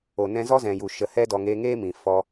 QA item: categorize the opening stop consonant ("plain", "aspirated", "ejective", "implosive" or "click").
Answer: plain